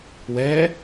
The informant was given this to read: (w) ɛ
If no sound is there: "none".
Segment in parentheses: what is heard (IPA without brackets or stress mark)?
w